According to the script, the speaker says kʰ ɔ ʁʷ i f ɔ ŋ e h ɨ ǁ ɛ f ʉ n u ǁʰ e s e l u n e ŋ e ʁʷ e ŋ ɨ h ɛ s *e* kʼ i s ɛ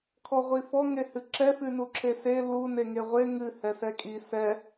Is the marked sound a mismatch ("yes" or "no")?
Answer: yes